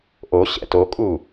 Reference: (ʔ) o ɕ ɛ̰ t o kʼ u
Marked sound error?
no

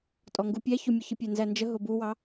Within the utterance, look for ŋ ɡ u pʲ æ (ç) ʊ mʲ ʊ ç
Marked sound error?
no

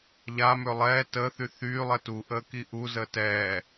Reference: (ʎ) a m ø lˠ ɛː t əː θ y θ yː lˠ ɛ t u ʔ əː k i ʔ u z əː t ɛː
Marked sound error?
no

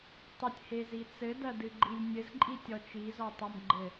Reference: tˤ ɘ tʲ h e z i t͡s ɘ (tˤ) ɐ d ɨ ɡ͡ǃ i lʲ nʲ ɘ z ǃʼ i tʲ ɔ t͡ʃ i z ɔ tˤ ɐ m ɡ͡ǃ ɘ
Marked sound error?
yes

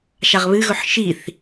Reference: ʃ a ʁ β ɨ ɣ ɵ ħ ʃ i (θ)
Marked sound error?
no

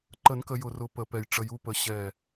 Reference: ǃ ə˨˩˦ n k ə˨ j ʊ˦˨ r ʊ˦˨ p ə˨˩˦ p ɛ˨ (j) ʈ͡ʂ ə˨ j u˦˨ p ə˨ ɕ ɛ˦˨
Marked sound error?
no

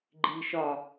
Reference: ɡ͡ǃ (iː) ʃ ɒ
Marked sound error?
no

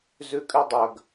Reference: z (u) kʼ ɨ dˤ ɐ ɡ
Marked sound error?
yes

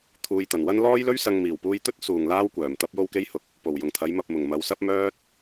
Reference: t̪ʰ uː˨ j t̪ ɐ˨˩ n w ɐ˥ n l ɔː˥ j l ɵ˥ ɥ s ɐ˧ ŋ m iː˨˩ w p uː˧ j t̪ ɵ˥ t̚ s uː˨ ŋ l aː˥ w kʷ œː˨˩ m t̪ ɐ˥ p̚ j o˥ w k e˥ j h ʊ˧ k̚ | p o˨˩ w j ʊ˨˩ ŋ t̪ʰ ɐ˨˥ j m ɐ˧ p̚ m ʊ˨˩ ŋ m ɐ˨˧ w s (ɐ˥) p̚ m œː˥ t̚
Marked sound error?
no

